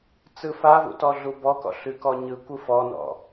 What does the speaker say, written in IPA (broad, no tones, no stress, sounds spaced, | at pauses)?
t͡s ɯ f a v ṵ t ɔ ɮ u b ɔ k ɔ̰ ɬ ʉ k ɔ ɲ ɯ kʷ ɯ f ɔ n ɔ̰